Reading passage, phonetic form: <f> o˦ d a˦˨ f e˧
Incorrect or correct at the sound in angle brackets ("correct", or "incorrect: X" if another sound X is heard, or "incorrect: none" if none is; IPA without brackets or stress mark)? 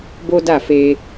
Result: incorrect: b